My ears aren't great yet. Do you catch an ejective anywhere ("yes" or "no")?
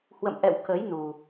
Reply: no